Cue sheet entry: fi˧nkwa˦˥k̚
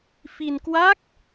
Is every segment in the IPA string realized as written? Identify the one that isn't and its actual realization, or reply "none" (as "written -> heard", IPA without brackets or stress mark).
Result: none